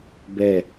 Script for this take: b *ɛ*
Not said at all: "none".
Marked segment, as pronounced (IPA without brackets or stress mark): ɛ